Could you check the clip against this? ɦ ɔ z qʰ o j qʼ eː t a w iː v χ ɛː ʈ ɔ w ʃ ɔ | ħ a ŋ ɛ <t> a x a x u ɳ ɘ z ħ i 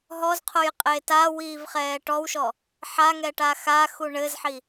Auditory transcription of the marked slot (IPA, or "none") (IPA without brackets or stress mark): ʈ